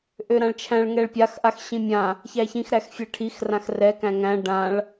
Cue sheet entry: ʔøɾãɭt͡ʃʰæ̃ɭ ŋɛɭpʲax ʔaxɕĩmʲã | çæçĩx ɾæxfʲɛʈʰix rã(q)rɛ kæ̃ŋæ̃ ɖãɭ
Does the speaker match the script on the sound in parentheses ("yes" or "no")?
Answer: no